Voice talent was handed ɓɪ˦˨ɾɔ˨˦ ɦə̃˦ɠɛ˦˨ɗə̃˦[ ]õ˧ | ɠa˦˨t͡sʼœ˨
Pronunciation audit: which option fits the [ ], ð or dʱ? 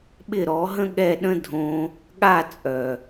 dʱ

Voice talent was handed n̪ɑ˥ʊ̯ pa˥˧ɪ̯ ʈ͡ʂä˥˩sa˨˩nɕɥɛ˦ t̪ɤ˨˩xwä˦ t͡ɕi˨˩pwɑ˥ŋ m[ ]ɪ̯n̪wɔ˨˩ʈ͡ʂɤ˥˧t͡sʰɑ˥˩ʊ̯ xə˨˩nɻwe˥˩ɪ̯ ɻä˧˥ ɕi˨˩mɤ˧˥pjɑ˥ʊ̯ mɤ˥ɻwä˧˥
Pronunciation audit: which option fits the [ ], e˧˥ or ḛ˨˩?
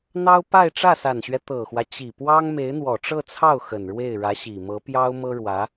e˧˥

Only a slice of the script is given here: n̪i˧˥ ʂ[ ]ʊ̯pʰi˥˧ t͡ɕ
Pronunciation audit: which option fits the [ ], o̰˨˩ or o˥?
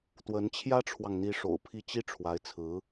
o̰˨˩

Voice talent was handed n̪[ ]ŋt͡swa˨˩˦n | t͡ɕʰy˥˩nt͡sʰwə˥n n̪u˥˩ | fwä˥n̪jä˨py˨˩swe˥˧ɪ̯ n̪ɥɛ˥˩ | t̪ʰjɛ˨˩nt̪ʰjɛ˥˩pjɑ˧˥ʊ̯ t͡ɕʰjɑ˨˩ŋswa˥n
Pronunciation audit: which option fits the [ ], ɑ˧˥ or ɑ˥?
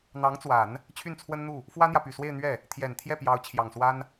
ɑ˧˥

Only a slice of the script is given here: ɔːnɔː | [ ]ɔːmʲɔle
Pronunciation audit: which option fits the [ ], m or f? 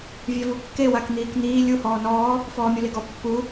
f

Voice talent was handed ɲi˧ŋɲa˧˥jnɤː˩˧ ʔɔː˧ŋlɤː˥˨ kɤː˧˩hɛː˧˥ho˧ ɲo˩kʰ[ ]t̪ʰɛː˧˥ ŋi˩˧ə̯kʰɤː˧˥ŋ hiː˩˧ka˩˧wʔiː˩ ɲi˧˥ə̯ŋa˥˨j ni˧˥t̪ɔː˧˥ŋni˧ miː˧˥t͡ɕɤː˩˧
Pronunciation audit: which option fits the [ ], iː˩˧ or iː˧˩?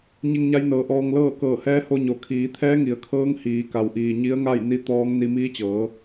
iː˩˧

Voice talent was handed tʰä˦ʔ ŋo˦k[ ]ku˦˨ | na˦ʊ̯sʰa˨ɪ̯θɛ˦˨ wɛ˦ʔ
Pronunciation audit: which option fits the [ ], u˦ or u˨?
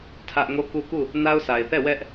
u˦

